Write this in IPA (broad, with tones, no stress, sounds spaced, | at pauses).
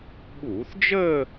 ɓ uː˧˩˧ θ d͡ʒ əː˥˧